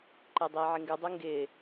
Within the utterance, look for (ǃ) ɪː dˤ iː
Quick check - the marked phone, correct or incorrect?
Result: correct